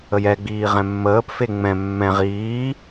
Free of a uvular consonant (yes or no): no